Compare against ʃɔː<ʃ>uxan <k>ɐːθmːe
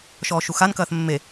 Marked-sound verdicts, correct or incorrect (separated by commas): correct, correct